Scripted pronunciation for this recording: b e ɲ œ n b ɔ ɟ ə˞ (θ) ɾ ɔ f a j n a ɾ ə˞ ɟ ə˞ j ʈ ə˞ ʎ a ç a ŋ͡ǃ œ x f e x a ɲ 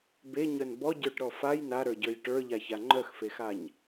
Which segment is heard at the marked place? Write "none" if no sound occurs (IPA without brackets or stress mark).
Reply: ʈ